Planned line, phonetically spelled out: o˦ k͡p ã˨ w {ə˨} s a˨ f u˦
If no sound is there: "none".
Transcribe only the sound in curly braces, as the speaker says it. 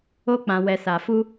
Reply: ɛ˨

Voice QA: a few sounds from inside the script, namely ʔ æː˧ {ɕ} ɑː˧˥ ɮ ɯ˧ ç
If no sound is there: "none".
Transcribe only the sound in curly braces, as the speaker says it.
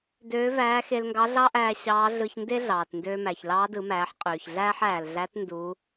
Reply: ɕ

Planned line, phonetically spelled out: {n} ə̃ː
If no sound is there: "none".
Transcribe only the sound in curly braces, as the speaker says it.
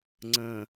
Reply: ŋ͡ǀ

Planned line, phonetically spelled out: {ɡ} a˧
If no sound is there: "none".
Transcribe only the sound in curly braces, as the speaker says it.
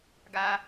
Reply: ɡ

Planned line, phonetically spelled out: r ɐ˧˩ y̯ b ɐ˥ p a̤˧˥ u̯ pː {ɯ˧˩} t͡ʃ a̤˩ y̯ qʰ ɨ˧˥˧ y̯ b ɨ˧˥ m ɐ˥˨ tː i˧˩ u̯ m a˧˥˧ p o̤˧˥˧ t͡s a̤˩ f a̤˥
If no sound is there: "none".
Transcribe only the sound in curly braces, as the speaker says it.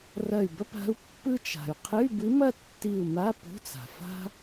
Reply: ɯ˥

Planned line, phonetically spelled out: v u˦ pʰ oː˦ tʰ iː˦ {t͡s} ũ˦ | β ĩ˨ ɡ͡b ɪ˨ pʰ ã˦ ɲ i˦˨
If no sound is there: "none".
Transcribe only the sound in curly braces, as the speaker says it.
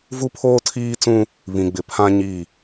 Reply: t͡s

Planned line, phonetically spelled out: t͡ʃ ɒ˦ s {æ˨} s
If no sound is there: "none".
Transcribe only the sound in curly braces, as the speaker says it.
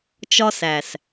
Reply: æ˨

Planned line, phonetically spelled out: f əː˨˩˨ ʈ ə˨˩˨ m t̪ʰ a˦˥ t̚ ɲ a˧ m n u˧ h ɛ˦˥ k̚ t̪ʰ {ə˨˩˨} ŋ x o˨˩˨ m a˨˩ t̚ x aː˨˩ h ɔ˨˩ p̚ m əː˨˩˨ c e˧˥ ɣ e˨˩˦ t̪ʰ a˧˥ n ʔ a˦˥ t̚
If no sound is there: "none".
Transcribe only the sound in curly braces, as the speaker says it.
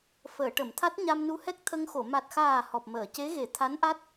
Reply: ə˧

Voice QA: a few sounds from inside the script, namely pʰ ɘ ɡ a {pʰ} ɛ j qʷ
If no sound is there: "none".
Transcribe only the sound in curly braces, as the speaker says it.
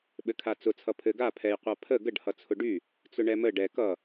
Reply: pʰ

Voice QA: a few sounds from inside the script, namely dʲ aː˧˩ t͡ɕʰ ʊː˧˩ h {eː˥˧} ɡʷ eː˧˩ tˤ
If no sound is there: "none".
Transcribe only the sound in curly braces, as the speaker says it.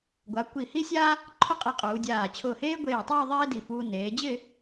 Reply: eː˥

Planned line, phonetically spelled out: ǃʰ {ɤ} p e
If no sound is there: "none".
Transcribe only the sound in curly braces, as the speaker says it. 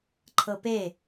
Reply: ɤ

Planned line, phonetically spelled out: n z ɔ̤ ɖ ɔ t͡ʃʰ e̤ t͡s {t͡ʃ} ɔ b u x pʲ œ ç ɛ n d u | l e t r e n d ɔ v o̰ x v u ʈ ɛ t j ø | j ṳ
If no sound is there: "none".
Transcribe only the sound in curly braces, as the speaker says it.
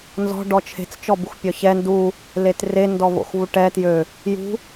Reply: t͡ʃ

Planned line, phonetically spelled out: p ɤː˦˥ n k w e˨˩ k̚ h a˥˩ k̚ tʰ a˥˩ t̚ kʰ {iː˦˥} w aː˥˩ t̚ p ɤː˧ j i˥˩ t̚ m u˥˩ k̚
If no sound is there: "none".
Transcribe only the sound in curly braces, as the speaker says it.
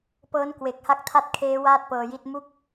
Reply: eː˦˥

